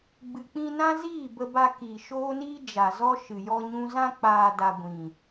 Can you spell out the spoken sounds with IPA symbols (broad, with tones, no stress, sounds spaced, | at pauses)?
ɡ͡b ɨ˨ k͡p ĩ˧ n ã˦ z iː˦˨ b ə˧ b a˧ k iː˨ ʃ oː˦ n iː˦ d͡ʒ a˨ z ɔ˦ ʃ ɨ˨ j ɔ˦ ɲ ũ˦ z ã˧ k͡p aː˨ d a˧ ɡʷ ĩ˨